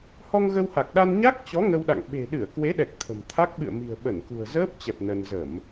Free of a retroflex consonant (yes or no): yes